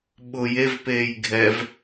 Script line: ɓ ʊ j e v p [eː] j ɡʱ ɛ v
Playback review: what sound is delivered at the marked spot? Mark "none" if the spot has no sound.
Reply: eː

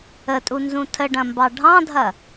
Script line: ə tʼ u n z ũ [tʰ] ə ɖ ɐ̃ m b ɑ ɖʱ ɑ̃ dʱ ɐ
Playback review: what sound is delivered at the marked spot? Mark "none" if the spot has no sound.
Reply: tʰ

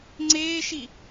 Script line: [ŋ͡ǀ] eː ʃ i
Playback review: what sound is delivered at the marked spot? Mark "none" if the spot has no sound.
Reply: ŋ͡ǀ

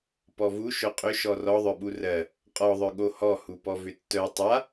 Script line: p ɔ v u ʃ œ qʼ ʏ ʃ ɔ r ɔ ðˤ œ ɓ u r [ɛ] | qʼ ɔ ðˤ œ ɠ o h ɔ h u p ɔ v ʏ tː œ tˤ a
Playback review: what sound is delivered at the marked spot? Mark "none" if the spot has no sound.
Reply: ɜ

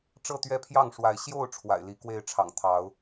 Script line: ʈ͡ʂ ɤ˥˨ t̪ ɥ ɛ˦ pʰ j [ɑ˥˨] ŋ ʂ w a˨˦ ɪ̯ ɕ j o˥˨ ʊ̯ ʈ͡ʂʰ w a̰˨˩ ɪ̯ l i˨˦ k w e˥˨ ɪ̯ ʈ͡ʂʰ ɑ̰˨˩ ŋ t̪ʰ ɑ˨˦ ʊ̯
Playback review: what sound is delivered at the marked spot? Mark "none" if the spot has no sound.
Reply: ɑ˥˨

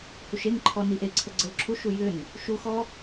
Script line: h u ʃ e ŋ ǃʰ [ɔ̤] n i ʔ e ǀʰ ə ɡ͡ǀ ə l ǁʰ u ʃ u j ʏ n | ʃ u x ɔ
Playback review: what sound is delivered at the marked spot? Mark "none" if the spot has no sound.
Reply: ɔ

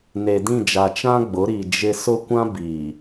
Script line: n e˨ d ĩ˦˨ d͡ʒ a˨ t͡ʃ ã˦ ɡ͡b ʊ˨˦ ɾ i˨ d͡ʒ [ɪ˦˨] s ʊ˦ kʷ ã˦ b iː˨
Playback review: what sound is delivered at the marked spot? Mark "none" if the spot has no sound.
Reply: ɪ˦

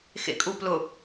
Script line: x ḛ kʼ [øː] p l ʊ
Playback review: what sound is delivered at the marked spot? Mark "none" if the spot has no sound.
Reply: uː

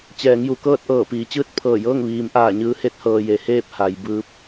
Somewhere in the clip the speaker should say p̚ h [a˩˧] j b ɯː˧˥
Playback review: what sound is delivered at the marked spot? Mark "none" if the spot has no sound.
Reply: a˩˧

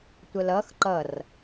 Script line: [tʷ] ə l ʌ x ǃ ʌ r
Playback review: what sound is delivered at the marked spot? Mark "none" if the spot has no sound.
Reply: tʷ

